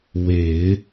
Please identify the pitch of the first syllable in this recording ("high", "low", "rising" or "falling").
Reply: low